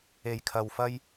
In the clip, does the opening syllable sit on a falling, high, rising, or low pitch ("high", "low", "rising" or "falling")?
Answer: low